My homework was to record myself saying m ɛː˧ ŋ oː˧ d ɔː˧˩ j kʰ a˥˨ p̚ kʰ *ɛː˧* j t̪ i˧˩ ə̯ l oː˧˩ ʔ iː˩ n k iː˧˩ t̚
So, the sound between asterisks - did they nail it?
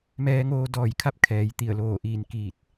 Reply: no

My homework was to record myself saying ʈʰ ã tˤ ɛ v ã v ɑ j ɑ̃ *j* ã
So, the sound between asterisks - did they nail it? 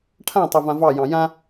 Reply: yes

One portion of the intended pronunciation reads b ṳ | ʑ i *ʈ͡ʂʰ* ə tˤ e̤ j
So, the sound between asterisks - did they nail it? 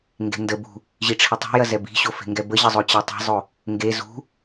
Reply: yes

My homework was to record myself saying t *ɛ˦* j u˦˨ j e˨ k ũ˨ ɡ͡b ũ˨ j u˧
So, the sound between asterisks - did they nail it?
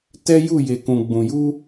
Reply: yes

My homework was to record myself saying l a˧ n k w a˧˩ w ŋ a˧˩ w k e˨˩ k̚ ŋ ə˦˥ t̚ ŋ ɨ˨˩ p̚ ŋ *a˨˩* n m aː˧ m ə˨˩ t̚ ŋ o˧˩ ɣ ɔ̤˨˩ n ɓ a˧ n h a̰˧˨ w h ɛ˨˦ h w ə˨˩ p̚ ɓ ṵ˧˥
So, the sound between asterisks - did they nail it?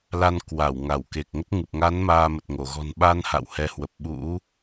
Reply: no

